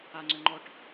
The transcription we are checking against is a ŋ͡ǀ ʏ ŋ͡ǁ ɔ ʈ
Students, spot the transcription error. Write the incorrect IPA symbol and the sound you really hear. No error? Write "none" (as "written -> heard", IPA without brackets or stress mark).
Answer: ŋ͡ǁ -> ŋ͡ǃ